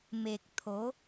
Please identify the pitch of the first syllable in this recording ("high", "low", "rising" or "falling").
low